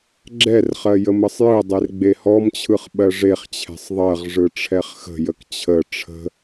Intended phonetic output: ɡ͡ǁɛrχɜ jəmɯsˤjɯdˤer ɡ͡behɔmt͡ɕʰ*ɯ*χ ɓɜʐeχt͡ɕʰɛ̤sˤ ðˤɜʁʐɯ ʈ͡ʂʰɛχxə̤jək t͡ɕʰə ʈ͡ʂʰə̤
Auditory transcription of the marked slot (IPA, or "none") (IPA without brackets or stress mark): ɯ